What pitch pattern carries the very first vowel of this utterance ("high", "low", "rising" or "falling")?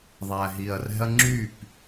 low